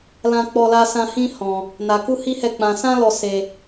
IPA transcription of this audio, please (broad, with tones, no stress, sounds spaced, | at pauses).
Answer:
l ã˧ k͡p ɔ˧ l a˧ s ã˧ h ĩ˦ h ɔ̃˧ | n a˧ k u˦ h i˦ h ɛ˦˨ k͡p ã˧ s ã˦ l ɔ˧ s e˧